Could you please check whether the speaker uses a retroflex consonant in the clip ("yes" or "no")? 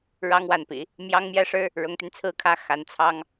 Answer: yes